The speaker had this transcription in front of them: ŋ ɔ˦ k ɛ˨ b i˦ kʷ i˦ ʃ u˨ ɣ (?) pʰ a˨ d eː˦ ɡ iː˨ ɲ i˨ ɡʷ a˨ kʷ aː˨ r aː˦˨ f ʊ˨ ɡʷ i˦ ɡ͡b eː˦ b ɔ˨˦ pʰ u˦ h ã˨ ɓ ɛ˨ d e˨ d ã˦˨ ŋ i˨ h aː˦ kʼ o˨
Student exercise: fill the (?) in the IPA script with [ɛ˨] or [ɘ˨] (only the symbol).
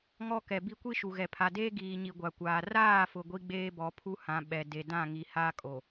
ɛ˨